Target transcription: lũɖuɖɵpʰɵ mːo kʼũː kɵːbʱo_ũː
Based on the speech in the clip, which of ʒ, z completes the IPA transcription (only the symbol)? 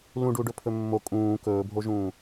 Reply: ʒ